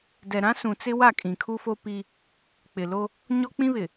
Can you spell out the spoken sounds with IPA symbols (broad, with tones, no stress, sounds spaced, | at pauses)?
d ɛ˨ ɾ ã˦ s ũ˨ t͡s ɪ˦ w a˦˨ kʼ ĩ˨ kʰ u˦ f o˦ p i˦ | k͡p ɪ˨ l o˦ | ɲ ɔ˦ k͡p ĩ˦ β ɪ˨